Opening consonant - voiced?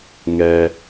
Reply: yes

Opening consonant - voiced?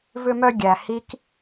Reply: yes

